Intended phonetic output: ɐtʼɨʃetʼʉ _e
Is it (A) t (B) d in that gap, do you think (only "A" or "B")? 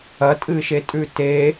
A